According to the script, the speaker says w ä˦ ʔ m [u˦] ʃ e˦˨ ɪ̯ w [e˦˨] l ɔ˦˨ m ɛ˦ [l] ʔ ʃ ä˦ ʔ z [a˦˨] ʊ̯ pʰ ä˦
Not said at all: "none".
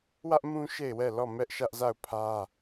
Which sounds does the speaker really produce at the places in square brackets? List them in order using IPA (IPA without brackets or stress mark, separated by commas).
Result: ũ˦, ɛ˦˨, none, a˦˨